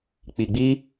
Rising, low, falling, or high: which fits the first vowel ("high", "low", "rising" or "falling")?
low